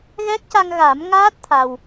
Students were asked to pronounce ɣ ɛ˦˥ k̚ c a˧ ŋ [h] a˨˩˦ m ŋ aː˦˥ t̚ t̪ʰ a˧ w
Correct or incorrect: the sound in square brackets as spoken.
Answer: incorrect: ɣ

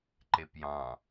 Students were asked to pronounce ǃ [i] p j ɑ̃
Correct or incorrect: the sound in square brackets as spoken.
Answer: incorrect: e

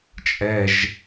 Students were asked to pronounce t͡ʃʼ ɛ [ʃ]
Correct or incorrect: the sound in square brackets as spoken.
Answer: incorrect: ʒ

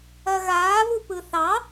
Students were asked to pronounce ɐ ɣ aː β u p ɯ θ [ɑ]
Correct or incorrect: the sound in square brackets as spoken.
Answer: correct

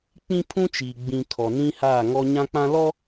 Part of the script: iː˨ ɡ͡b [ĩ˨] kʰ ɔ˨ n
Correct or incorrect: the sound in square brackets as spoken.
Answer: correct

